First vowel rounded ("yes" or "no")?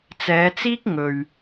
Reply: no